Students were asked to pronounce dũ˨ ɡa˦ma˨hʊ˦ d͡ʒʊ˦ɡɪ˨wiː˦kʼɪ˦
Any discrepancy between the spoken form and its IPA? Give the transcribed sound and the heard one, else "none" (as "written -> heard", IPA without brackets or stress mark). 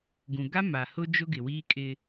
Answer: d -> ɡ